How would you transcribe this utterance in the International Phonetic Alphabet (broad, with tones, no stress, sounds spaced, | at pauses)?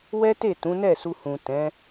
w ɛ˦ t e˦˨ t ũ˨˦ n ɛ˦˨ s u˧ h ũ˨ t ɛ̃˨˦